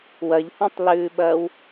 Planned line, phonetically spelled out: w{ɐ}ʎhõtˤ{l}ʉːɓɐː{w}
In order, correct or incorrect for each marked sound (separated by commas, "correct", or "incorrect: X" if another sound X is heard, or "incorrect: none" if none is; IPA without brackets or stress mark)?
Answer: correct, correct, correct